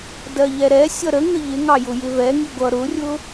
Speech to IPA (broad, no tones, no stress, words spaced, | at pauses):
dɜʎɛɾɛ sʲʌɾə ŋəʎɪ ŋɑjʊjɪvɛ ŋiɡʷʌ ɾʊrʲʊ